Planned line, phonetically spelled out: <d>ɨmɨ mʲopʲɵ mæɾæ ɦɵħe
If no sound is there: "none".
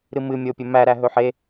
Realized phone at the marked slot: ɾ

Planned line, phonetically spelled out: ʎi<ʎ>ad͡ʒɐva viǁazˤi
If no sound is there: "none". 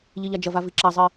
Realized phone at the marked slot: ʎ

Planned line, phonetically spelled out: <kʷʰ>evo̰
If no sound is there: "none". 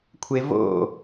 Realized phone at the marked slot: kʷʰ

